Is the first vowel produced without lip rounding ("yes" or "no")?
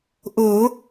no